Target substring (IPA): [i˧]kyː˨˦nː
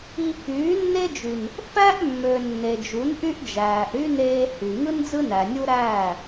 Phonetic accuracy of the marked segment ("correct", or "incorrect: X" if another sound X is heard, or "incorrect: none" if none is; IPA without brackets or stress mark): correct